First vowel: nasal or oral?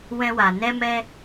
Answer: nasal